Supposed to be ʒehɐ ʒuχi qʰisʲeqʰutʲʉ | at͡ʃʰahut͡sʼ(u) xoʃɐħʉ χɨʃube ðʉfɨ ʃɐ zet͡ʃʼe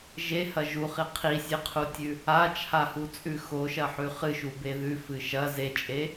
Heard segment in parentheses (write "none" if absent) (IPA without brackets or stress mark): ʉ